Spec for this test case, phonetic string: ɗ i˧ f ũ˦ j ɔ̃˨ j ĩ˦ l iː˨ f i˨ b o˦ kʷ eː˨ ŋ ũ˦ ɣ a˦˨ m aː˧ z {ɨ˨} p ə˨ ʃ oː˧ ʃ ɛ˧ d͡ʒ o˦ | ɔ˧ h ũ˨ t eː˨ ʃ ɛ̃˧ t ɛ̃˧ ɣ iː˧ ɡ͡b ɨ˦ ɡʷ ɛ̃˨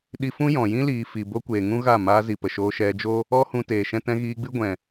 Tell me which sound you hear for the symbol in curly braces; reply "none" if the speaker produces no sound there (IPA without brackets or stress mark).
i˨